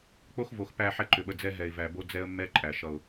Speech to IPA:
k͡p o˦ x v o˨ x p æ˦˨ ħ ɛ˦ ǃ ʏ˨ ɓ ə˨ d͡z ɛ˦ ɦ ɛ˨ ɪ̯ v æ˨ b o˦ d͡z ɛ˦ ə̯ mː ɛ˦ ǃʼ æ˨ ʃ ʌ˦˨ ʊ̯

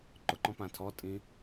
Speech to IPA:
ǃ ʊ ǃ ɔ̃ p ã tʰ ɔ tʼ ĩ

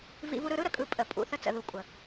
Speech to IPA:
v ḭ˧ v u˧ ɾ ɯ˧ ɾ ɯ˦ ɾ ə˨ kʼ ɯ˧ pʼ ə˨ pʼ ṵ˨ θ ə˧ t͡s ə̰˨ ð u˨ kʷʼ ə˨

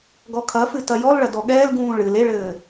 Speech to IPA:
ɡ ɔ kʰ ɐ f ɨ t ɐ j ɔ l ɭ ɐ d ɔ ɠ ɛː l ɡ ũː ɭ ɨ l e ɭ ɘː

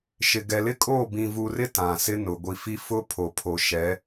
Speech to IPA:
ʃ ɪ˨ ɡ ɛ˨ l ɪ˦ kʼ oː˦˨ b ĩ˨ v u˨ r ɪ˦ t ã˨ s ɪ˦ n ʊ˨ ɡʷ i˨ f i˦ f ʊ˦ pʰ o˨ pʰ o˨ ʃ ɛ˨˦

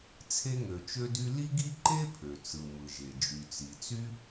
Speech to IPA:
t͡sʰ e˥ ŋ ø˩ t͡ʃ ø˥ d y˥ l i˥ ɡ i˥ ǃ e˥ pʰ ø˩ t͡s ɯ˩ m ɯ˩ ʒ e˩ d͡ʒ y˩ t͡s i˩ t͡s y˥

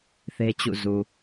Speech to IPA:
θ e˦ t͡ɕ ṵ˦˨ z u˨

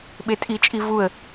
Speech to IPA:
ɓ e tʼ i t͡ʃʼ i v u ə̯

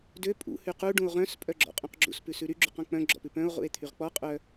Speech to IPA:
d ø pʼ ṵ h y q u ɖ ũ o̯ ʁ œ̃ s pʼ œ ɡ͡ǁ ɔ̰ qʼ ũ q ɡ͡ǁ ṵ s p ʉ s ʉ ɾ y ɡ͡ǁ ʉ q ɔ̃ k͡p œ̃ ɡ͡ǁ ɔ̰ p ʉ p œ̃ o̯ ʁ ṵ e̯ t̪ʰ y ʁ k͡p ɔ qʼ œ

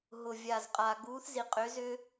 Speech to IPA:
ɦ ʊ˨ vʲ aː˨ z qʼ a˨ ɡ uː˨˦ θ z i˨ qʼ ʏː˨˦ z ʏː˦

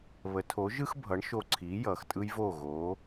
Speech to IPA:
β ə˩˥ tʰ o˩˥ ʒ ɯ˥ x bʱ ʌ˩˥ ɳ ʃ o˧ ǀʰ iː˩˥ j ʌː˩ x tʼ ɯ˥ j v oː˥˩ ɣ oː˩˥

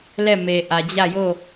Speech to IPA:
l ɛ˦˨ m e˨ ʔ ä˨ d͡ʑ ä˦˨ j o˦˨

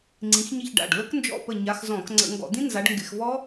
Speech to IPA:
ŋ͡ǀ ĩ˨˦ x ɲ i˦˨ ç ɖ a̰˩˧˩ ɖ l ə˦˥ k n d͡ʒ ɔ̰˦˨ p ə˦˨ ɲ a˨˦ x z ɔ̃˧˩˧ k ŋ͡ǀ ə̰˧˩˧ ŋ ɡ ɔ̰˧˩˧ d̪ ĩ˦˥ n z a˨˦ ɖ ŋ ɡ ɪ˧˩˧ x v ɔ˦˥

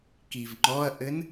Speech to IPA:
k i v ŋ͡ǃ ɔ ɐ̯ ʔ ɘ n

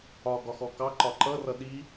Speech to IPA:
ɒ ɡ ɒ x ɔ k ɑ ǃ ɒ ǃ ʌ r ʌ ɗ i

